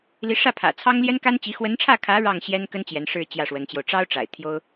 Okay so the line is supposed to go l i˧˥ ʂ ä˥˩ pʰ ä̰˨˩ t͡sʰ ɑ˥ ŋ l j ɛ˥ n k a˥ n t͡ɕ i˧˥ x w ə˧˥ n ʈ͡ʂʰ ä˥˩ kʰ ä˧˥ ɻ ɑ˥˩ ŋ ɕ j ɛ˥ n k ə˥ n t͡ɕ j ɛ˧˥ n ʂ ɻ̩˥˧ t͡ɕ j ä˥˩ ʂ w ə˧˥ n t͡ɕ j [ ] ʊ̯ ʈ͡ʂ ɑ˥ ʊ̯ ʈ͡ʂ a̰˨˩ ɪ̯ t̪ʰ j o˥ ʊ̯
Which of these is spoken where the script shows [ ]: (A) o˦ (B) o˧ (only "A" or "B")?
B